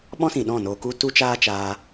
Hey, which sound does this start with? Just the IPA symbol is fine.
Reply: ɓ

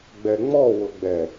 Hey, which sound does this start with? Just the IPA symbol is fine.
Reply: ɡ͡b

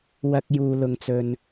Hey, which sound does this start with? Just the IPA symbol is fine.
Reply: w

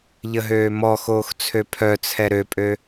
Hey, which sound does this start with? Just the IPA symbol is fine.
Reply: ʎ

